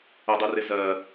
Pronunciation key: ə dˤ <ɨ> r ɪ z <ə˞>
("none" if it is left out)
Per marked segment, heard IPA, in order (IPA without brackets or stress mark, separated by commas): ɨ, ɜ